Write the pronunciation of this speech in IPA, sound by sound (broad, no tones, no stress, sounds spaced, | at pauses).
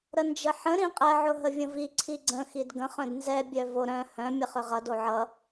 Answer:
ɾ ə n d͡ʒ ə ħ ə̃ ɾ ĩ qʼ ɛ ʕ ʊ ɦ ə vʲ ə̃ v i ǀʰ i ɡ͡ǀ ə̃ x i d ɡ ə̃ χ œ̃ d n z ɛ bʲ œ v o ɾ œ̃ h œ̃ mʲ ə χ ʏ ʁ ʌ d o ʕ ʌ